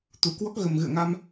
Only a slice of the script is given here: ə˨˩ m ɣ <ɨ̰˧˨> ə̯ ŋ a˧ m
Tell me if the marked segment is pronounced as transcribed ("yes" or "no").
yes